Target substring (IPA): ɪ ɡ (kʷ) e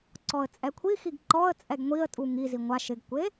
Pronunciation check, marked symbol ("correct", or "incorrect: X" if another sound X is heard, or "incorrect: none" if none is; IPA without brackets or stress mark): correct